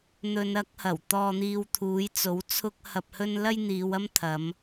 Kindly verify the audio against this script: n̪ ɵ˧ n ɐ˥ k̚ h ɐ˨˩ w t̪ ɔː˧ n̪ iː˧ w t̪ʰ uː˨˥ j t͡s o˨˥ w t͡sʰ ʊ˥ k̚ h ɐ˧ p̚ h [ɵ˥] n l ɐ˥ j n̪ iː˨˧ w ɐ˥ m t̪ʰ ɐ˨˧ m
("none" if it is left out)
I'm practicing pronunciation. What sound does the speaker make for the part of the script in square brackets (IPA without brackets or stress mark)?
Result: ɵ˥